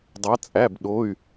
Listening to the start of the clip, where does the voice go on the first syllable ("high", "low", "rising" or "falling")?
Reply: rising